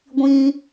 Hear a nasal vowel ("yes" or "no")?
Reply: yes